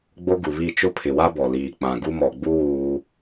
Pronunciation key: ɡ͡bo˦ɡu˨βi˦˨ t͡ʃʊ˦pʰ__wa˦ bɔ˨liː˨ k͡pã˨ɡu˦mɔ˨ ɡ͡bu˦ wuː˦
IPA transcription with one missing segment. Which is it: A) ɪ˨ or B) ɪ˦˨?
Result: A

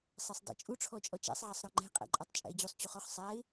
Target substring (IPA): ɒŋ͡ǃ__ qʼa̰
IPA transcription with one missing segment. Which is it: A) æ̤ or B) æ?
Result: A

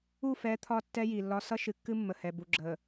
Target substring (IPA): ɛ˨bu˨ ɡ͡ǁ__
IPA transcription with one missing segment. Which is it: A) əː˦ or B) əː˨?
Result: B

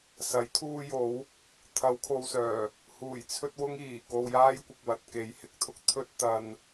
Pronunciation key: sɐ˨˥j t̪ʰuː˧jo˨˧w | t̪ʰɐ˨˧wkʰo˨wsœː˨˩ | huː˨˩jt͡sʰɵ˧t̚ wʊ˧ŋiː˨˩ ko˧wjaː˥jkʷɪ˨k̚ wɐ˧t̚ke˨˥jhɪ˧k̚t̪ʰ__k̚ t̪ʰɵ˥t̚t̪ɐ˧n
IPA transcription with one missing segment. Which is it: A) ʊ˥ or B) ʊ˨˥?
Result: A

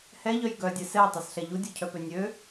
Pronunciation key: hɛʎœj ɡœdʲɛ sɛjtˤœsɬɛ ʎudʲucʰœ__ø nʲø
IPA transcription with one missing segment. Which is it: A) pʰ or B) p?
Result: B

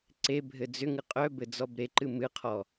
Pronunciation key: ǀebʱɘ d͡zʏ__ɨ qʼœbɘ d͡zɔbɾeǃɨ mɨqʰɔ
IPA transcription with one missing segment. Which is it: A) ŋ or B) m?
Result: A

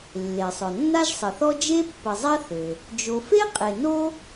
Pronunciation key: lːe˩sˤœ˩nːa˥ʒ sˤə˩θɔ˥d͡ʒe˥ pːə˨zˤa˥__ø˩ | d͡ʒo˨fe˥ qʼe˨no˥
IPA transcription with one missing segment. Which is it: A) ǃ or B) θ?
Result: B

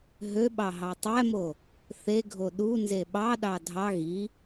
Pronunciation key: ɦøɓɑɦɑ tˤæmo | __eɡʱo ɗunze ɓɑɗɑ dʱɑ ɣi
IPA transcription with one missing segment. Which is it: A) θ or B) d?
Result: A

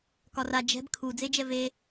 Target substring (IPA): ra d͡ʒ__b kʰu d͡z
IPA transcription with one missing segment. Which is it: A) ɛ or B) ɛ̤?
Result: B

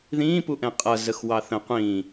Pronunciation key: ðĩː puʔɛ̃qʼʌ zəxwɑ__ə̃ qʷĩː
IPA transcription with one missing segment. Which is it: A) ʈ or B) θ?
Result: B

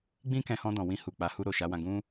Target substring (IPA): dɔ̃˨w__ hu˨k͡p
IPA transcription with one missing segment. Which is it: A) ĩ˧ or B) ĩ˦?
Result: A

